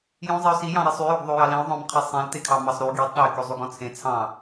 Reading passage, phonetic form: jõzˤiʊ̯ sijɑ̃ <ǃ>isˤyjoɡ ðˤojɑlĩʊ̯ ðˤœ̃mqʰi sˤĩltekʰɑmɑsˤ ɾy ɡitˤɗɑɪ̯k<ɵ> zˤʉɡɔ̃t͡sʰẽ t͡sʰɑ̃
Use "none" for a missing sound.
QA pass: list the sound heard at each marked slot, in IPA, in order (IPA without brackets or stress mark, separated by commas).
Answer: ɾ, ɵ